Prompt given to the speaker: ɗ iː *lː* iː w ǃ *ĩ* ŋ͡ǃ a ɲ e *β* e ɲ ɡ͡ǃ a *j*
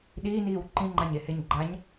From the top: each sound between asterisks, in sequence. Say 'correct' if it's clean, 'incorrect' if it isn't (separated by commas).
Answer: incorrect, correct, incorrect, incorrect